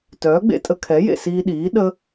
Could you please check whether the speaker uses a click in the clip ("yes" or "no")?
no